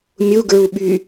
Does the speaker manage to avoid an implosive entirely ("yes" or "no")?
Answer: no